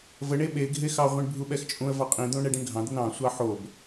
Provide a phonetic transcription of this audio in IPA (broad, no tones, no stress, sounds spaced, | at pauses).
v ə ɳ e ɓ e ɡʱ e x ɑ ʁʷ ĩ ɳ bʱ u ɓ ɛ x t͡ʃʼ ũ ə̯ v ɑ qʼ ĩ d̪ õ ɳ ɛ ɖ ĩ ɳ ɡʱ ɑ̃ d̪ ə n ɑ̃ sʷ ɑ ħ o b